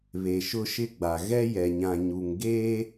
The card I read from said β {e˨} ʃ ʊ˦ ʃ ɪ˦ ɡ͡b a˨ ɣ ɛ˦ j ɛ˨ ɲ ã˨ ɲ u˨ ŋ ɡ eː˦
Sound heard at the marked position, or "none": e˨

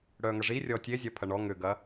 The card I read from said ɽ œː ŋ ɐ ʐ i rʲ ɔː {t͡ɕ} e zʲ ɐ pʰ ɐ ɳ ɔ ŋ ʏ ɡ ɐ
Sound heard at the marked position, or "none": tʲ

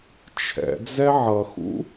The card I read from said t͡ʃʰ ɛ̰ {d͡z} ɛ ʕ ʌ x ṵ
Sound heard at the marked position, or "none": d͡z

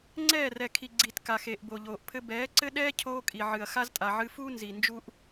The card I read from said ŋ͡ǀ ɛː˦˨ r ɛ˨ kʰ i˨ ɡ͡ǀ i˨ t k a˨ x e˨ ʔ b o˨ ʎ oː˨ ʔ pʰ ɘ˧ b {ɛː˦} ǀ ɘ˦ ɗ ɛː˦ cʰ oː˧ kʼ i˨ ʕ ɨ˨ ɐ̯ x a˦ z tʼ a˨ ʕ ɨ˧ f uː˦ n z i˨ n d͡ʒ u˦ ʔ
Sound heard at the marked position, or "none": ɛː˨˦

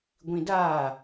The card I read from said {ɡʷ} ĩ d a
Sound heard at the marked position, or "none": ɡʷ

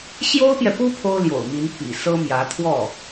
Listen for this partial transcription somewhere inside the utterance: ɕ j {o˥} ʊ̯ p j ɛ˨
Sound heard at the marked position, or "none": o˥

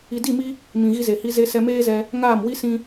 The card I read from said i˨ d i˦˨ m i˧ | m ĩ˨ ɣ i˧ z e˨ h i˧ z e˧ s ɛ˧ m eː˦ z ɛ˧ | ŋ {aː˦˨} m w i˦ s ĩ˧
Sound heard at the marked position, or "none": aː˦˨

